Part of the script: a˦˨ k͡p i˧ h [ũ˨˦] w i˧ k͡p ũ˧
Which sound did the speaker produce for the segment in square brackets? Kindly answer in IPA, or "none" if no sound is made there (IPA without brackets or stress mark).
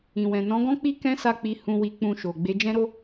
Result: ũ˧